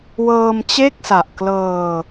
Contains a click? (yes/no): no